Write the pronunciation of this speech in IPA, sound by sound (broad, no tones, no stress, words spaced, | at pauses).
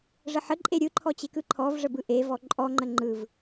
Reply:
ʐəħə ǃʼeɾʲɯǃʰɔt͡ɕe kɯǃʰɔv ʐəbɯʔevɔ ǃʼɔŋ͡ǃə ŋ͡ǃɯv